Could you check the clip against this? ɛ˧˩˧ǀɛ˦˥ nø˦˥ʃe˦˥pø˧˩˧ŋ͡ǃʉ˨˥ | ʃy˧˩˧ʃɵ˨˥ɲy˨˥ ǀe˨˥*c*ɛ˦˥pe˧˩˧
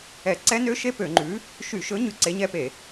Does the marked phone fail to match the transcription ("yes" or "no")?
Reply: yes